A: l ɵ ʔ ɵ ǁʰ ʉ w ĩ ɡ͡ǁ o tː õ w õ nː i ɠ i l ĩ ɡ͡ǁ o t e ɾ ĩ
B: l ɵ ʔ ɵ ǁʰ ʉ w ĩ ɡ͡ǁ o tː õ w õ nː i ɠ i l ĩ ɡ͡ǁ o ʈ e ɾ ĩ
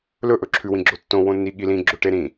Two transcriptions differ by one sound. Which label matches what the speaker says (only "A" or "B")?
B